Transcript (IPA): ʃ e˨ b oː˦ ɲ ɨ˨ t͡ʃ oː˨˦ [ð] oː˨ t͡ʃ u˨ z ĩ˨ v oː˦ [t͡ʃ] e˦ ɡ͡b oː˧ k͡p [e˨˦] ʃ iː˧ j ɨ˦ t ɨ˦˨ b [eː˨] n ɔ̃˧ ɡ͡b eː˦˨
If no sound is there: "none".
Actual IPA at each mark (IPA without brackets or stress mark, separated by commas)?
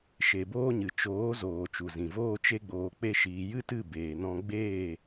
z, t͡ʃ, e˦, eː˨